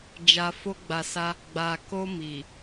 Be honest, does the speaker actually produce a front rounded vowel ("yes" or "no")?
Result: no